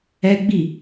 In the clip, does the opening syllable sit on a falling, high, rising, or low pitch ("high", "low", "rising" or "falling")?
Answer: high